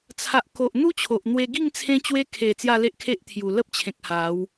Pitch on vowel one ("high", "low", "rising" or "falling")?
low